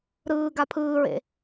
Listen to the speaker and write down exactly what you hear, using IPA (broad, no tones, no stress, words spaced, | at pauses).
ɾɯː ɡapʰɯːɹḛ